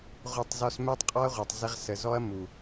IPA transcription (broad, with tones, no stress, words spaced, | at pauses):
ʁʷɛ˧tˤzɔ˧s mɛ˦tˤqʼɔ˦ɐ̯ʁʷɑ˨tˤzɪ˧ʁ sə˨ zɔ˦ɐ̯ mu˨